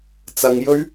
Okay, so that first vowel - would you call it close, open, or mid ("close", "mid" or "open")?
open